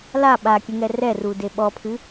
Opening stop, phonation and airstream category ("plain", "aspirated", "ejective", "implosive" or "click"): implosive